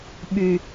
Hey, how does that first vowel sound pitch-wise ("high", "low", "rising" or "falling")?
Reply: high